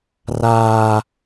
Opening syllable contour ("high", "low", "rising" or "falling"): high